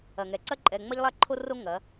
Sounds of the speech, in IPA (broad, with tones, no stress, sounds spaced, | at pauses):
ɐ˨ ŋ ɛ˨ ǀ ɐ˦ ǃʼ ɛ˨ ŋ͡m ɐ˦ ʎ lˠ a˦ ǃʰ o˦ r o˦ ŋ ɐ˨˦